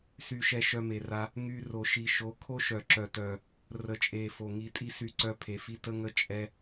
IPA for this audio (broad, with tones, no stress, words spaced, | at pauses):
sy˧ʃɛ˧ ʃœ˧me˨ra˧ | ŋy˧ ro˨ʃi˨ʃo˨˦ kʰo˦ʃœ˨ ǁœ˨tœ˨ | rə˨t͡ʃʼe˨ fo˨ŋi˧ tʼi˦sy˧ǀœ˧ pʰe˨fi˧tə˧ŋə˧ t͡ʃʼɛ˧